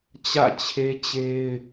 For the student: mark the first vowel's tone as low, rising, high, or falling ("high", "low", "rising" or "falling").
falling